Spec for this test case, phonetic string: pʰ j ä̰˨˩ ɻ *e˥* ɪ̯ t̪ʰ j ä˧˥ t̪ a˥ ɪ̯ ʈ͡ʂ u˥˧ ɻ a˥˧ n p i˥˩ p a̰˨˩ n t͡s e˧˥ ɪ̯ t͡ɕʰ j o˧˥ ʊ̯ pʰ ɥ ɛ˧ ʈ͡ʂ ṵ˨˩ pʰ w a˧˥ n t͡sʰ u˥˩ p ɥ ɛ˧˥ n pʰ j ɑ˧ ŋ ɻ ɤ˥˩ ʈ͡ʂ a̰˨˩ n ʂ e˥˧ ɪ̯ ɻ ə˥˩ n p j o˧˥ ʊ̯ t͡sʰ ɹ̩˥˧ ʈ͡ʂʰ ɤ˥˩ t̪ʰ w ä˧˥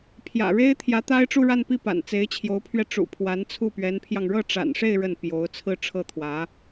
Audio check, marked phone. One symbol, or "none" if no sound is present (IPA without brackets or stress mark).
e˥